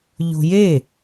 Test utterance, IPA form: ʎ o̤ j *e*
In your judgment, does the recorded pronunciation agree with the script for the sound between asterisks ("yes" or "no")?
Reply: yes